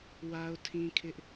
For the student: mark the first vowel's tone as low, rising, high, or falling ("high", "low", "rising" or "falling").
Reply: high